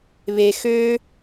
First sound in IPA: β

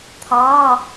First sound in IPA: t̪ʰ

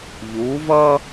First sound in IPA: ʎ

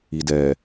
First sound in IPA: i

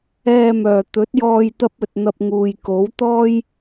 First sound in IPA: ɛː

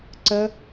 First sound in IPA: ǀ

